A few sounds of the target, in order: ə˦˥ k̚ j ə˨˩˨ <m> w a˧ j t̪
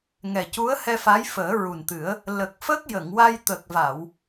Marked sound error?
yes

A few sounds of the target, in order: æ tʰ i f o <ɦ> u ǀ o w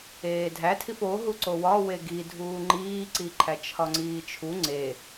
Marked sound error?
no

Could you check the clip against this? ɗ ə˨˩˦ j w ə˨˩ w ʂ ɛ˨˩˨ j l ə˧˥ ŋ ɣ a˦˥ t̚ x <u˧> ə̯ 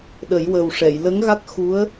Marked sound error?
yes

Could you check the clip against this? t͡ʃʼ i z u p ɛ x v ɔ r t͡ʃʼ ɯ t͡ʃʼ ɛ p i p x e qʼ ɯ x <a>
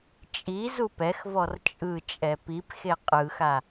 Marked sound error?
no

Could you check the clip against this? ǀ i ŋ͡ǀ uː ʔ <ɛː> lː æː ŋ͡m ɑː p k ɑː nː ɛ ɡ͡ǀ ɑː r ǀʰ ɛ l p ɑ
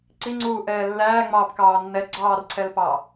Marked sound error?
no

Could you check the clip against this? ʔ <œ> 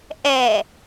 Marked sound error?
yes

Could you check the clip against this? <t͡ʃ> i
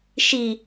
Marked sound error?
yes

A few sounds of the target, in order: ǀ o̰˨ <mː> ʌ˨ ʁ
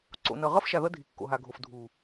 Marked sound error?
yes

